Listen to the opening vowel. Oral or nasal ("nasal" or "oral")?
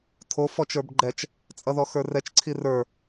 oral